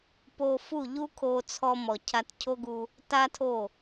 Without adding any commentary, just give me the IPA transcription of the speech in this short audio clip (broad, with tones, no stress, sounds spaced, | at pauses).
p o˧ f u˦˨ ʎ u˦ kʰ o˧ t͡sʰ ɔ˧ m ɔ˨ cʰ a˧ t cʰ o˦ ɡ u˧ | t a˦ tʰ o˦˨